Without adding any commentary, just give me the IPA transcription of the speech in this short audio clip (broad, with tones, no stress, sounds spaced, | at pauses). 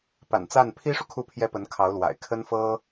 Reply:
p a̰˨˩ n t͡s a˥˩ n pʰ i˥ ʂ u˨ kʰ u˥˩ pʰ j ɛ˥ p ə˧˥ n kʰ ɑ˧˥ ʊ̯ l w a̰˨˩ ɪ̯ kʰ ə˥ n f ɤ˥